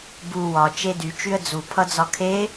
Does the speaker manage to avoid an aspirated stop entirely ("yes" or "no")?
no